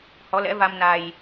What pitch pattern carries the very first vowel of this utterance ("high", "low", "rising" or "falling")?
rising